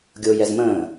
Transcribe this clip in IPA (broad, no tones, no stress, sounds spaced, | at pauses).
ɡʲ o j ɛ z m ə̃